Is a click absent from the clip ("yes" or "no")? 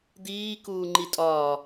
no